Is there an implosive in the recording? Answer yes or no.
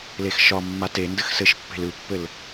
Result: no